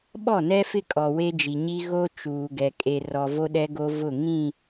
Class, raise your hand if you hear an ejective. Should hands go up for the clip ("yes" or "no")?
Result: yes